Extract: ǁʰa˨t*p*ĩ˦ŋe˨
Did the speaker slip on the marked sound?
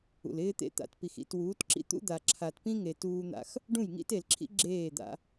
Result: no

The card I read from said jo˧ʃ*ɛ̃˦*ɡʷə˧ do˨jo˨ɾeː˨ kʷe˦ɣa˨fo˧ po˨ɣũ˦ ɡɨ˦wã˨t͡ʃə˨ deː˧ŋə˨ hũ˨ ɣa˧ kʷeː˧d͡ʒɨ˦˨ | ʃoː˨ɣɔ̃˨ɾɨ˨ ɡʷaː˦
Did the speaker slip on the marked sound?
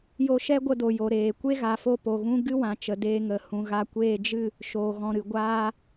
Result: yes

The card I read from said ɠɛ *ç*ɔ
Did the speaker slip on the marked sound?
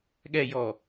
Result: yes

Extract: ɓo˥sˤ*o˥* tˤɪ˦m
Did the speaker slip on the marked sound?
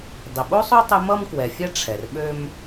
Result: no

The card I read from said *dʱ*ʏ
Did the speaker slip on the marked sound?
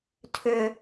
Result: yes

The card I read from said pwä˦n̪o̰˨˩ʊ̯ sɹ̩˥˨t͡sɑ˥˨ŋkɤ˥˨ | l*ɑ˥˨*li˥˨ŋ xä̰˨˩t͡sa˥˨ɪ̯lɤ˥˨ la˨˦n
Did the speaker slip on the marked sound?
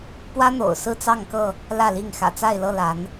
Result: yes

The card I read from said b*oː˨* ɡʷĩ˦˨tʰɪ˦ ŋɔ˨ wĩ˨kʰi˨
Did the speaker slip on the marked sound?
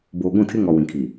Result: no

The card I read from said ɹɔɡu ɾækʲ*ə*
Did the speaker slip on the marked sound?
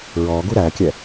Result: yes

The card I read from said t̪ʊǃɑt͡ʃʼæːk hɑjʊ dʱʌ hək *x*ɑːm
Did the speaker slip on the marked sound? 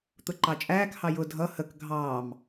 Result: yes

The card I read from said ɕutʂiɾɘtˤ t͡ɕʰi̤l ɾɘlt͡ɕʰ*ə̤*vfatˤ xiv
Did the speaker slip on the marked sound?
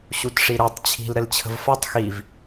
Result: no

